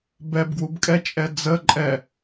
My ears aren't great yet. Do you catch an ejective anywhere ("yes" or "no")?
yes